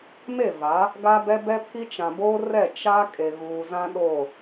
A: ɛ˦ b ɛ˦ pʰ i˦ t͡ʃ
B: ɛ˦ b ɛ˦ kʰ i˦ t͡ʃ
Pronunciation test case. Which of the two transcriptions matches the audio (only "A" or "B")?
A